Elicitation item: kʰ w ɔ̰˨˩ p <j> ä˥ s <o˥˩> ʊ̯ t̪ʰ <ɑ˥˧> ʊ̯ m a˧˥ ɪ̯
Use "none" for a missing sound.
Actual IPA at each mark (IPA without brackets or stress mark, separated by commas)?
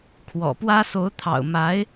w, o˧˥, ɑ̰˨˩